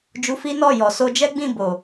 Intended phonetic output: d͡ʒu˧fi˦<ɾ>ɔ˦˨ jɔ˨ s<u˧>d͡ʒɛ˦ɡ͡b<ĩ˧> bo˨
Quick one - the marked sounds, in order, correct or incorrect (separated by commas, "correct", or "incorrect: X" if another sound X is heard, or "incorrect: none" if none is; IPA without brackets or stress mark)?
incorrect: n, incorrect: o˧, incorrect: ĩ˦˨